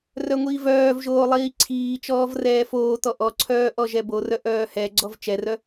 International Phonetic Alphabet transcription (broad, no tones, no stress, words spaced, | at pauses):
rœŋʷiːvœːvʒoː lˠiːǀʰiːt͡ʃɔːv rɛːfoːtɔ ʔɔǀʰœː ʔɔʒɛborœ ʔœːhɛɡ͡ǀɔv t͡ʃɛrœ